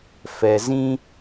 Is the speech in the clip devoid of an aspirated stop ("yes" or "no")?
yes